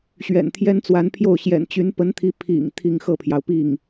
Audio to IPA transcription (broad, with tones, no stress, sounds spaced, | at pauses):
ɕ ɥ ɛ̰˨˩ n t̪ʰ j ɛ˥ n t͡s w a˧˥ n pʰ j o˥˩ ʊ̯ ɕ j ɛ̰˨˩ n t͡ɕ y˧˥ n p ə˧˥ n t̪ʰ i˧˥ pʰ ḭ˨˩ ŋ t̪ʰ i˥˧ ŋ x ɤ˥˩ pʰ j ɑ˩ ʊ̯ p i˥˩ ŋ